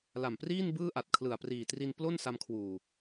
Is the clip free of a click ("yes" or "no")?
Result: yes